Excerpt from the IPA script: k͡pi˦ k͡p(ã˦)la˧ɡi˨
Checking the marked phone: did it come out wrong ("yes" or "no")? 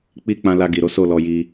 yes